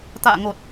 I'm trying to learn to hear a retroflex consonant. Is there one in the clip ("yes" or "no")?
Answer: no